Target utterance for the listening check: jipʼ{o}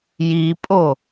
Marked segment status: correct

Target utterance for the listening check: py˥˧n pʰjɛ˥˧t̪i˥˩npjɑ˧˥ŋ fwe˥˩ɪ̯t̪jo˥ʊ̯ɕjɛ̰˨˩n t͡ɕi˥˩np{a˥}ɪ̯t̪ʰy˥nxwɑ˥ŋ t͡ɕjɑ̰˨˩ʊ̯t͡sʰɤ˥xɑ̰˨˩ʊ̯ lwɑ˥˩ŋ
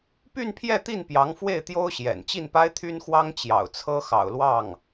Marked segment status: correct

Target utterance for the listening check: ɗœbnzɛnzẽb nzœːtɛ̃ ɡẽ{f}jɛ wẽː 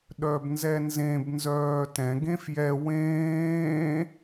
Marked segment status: correct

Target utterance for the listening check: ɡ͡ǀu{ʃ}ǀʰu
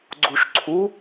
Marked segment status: correct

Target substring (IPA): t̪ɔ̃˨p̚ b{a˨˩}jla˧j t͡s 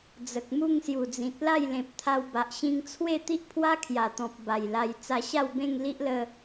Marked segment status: correct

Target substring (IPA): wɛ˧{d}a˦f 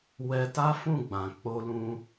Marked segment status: incorrect: t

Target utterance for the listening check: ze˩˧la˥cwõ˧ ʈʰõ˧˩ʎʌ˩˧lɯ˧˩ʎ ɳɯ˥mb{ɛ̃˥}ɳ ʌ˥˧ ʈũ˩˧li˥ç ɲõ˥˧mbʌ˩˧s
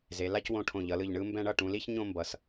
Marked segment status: correct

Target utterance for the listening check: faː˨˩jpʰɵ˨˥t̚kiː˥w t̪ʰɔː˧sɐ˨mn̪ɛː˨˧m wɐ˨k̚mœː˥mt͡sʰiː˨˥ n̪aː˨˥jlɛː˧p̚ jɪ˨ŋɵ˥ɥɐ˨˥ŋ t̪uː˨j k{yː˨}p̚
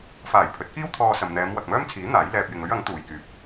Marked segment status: correct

